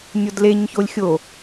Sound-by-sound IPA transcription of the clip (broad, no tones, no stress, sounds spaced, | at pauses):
nʲ o d l e ɲ ç o lʲ xʲ o